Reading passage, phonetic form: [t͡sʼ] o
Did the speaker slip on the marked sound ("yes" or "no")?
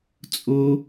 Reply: no